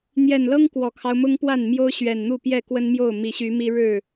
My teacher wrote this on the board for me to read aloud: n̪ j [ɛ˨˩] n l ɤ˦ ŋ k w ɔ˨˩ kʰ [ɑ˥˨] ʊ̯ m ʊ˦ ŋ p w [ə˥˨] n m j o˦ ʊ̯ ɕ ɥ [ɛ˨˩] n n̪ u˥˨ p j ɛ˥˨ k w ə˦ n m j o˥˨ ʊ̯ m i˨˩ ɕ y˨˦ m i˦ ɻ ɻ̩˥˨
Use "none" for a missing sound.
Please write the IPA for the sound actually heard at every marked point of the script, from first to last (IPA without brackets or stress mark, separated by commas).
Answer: ɛ˨˩, ɑ˦, a˥˨, ɛ˨˩